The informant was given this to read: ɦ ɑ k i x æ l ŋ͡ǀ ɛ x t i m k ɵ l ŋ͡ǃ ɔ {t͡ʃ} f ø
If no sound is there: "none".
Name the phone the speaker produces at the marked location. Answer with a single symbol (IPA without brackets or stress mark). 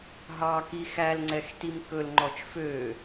t͡ʃ